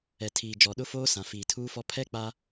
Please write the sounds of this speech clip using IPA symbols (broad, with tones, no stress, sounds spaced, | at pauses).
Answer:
ɛ˨ tʰ iː˨ d͡ʒ ɔ˨ ɗ ʊ˦ f oː˦ s ã˨ f iː˨ tʰ uː˦ f ɔ˦ pʰ ɛ˦ k͡p a˦